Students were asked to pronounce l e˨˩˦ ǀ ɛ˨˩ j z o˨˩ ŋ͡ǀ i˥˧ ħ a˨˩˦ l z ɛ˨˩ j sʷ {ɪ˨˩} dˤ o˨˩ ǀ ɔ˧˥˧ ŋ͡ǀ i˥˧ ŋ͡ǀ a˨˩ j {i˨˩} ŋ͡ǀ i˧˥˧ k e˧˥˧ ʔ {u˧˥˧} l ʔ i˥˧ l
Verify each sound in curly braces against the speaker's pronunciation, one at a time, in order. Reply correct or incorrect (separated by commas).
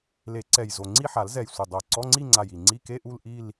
correct, correct, incorrect